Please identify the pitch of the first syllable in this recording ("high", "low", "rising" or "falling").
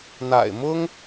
low